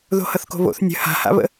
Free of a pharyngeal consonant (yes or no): yes